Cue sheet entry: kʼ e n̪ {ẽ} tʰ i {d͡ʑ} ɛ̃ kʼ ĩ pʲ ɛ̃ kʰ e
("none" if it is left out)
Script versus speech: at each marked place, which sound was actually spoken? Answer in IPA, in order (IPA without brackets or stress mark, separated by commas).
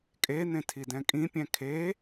ẽ, d